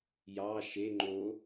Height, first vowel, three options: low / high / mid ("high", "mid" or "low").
low